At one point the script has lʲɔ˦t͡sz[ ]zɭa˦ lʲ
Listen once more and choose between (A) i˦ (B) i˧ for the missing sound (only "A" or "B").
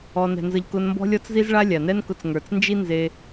A